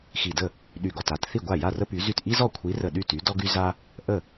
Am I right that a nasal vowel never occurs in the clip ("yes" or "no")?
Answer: yes